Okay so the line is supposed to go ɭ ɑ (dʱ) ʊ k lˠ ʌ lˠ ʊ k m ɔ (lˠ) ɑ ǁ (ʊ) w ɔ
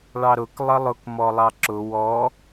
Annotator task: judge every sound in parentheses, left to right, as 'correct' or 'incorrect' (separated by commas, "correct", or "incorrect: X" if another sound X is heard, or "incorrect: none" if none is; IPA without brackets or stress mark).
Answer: incorrect: ɾ, correct, correct